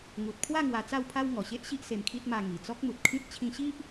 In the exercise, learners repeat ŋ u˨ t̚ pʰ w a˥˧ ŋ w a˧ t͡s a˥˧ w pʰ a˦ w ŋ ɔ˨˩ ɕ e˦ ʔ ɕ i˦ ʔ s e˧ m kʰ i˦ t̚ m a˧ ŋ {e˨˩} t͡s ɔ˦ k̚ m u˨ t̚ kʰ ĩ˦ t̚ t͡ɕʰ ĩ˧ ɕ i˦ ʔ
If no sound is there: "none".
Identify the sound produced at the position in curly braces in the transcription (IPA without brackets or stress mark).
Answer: i˨˩